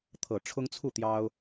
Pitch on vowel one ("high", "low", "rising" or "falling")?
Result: low